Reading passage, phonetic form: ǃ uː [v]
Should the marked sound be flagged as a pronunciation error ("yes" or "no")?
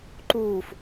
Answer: yes